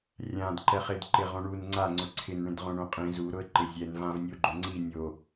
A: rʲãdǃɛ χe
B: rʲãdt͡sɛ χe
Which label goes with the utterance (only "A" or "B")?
A